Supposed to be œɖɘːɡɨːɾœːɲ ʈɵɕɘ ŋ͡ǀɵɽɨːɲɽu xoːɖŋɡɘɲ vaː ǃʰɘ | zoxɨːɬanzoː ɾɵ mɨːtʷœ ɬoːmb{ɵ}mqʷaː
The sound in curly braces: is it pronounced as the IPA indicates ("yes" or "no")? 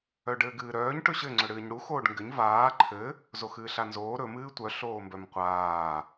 no